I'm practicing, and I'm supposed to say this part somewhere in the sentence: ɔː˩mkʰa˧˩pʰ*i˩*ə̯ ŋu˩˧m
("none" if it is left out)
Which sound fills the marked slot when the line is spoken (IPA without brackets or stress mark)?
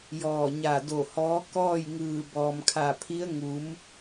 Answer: i˧˥